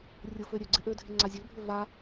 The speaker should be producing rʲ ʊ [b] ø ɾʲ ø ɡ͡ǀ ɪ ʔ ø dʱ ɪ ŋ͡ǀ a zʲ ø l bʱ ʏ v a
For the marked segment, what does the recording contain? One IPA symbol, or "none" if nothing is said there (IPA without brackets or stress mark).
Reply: f